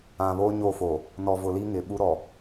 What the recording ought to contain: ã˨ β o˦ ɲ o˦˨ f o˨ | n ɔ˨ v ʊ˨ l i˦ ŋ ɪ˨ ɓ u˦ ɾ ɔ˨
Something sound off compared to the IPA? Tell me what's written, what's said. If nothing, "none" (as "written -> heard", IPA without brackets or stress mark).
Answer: none